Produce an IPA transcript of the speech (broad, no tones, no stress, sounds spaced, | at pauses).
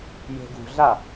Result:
j e̤ ɡ ṳ ɮ a